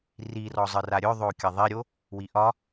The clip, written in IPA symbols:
r i r ɔ zˤ ɨ r a ɾʲ ɵ ðˤ o kʲ ɐ ðˤ i ɾʲ o | w i ʔ ɒ

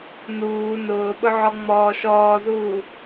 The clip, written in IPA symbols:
n uː n ʊː ɓ ʊ ʕ ɔ ŋ͡m ɔː ʃ ɔː z uː

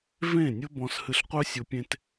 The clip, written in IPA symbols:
v ẽ˦˨ nʲ ʊ˦ b ɔ̃˧ s h ɨ˧ ɬ qʷ œ˦ sʲ ʊ˧ pʲ ẽ˦ t

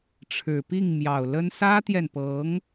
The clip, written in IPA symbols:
ʈ͡ʂʰ ɻ̩˨˩ p i˥˩ ŋ m j ɑ˨˩ ʊ̯ l ə˥ n s ä˥ t̪ j ɛ˨ n p ɤ˧˥ ŋ

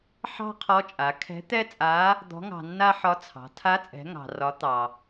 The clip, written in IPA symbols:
ħ ɑ̤˥ qʰ ɔ˧˥ t͡ʃʼ a˩˧ kʰ ɛ̤˧˥ t̪ ɛ˥ t͡sʼ a˧˥ | d̪ ɔ̤˧˥ ŋ ɑ̤˧ nː a˥ ħ ɒ˧˥ t͡sʰ ɑ̤˩˧ tʰ a˧˥ t͡sʼ ɛ̤˩˧ ŋ ɑ̤˩ r ɒ˩˧ t̪ ɑ˩

